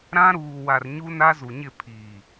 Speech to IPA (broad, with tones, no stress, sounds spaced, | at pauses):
ɾ ã˦ ɾ uː˨ w a˨ r ɲ u˦ n a˦ z u˨ ɲ ɪ˦˨ pʰ iː˨